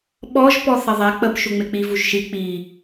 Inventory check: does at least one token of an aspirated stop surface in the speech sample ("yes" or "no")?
no